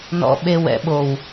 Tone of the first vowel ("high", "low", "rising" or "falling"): low